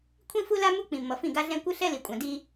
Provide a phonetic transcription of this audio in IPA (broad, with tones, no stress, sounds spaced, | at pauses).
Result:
kʷʰ ĩ˦ f u˦ l a˦ m u˦ k͡p ĩ˨ mː ʌ˨ f ĩ˦˨ ɡ a˦ ɮ ɛ̃˦ kʷ ɯ˦ ɬ ɛ˦ l i˨ kʷʼ ã˨ d i˦